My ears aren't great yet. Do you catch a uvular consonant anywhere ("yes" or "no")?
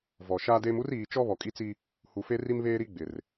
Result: no